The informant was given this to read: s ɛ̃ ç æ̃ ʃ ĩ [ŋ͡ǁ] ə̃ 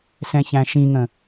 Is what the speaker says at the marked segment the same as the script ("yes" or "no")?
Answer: no